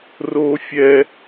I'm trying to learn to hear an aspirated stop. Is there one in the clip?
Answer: no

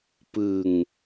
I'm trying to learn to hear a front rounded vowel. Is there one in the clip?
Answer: no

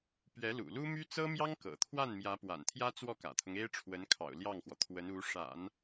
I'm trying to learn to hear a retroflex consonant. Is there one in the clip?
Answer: yes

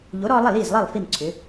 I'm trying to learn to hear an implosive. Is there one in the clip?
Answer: no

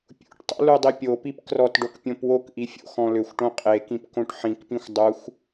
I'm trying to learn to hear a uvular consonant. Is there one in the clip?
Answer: yes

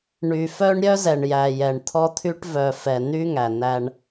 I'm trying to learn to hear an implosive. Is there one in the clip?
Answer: no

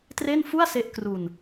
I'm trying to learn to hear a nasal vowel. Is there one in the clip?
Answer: no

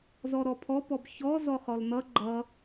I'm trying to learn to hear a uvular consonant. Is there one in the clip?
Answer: yes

